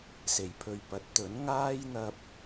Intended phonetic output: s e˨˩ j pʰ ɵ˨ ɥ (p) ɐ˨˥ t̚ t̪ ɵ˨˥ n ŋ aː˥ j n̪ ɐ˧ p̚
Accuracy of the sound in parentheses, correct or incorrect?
correct